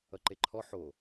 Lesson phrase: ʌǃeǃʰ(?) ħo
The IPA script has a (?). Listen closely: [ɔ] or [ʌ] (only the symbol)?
ɔ